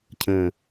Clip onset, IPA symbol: cʰ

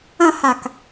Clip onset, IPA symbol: ɐ̃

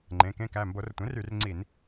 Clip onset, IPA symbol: ŋ͡ǃ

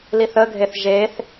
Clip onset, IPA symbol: l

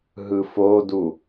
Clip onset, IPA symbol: ɦ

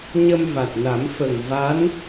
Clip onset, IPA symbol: ɲ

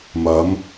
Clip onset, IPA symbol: m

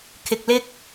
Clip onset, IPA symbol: kʰ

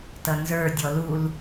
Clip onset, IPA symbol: t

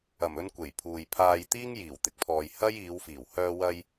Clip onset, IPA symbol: ɐ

